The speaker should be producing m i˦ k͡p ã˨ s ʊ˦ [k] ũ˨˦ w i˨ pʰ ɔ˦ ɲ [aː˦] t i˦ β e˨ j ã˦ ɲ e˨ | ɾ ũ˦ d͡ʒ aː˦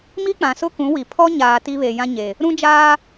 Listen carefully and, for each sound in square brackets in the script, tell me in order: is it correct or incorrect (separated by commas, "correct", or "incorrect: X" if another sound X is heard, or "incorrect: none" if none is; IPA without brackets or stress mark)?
correct, incorrect: aː˨